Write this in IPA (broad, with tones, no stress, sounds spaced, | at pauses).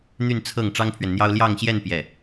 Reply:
n̪ y˥˧ n t͡sʰ ɤ˥˩ ŋ ʈ͡ʂ ɑ˥ ŋ pʰ ɥ ɛ˨ n n̪ j ɑ˥ ʊ̯ l j ɑ˥˧ ŋ ɕ j ɛ˥˧ n p j ɛ˥˩